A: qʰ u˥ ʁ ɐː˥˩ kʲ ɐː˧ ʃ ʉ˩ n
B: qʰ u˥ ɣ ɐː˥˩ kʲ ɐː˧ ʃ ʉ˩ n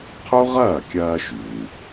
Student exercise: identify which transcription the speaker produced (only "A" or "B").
A